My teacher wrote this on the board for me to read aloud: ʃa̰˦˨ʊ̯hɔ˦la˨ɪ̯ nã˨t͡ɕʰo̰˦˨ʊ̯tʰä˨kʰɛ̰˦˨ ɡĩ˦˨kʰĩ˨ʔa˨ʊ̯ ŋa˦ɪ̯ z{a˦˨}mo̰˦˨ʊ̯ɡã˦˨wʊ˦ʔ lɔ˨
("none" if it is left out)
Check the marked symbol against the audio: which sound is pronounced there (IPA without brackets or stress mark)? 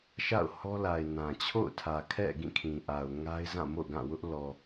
ã˦˨